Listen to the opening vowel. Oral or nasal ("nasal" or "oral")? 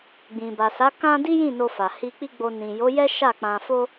nasal